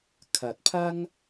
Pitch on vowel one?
low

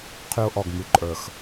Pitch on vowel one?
high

